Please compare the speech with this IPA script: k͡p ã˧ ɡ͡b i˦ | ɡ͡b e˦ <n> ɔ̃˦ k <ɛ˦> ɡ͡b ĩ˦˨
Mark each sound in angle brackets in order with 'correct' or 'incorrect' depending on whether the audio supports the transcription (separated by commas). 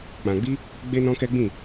correct, correct